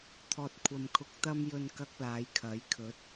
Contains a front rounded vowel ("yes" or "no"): no